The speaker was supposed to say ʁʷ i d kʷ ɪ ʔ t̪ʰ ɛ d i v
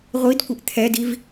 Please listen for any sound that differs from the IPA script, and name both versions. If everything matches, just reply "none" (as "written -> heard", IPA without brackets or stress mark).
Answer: none